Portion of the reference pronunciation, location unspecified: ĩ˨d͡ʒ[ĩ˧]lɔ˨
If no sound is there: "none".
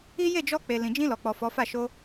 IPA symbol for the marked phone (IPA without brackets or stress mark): ĩ˧